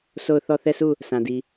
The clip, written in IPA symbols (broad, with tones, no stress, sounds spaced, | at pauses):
s o˦˨ ʊ̯ θ ɔ˦˨ θ ɛ˦˨ s u˦˨ | s ã˨ d i˨